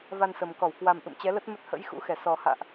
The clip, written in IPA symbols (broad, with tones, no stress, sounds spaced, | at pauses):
v a˧ n s ə˨˩ m k ɔ˧˩ w k w a˨˩ m ʔ ɨ̰˧˨ m t͡ɕ ɛ˨˦ l ə˦˥ t̚ m ə˦˥ t̚ h ə̰˧˥ j x ṵ˧˥ x ɛ˧˩ s ɔ˨˩ h a̰ː˧˨ ʔ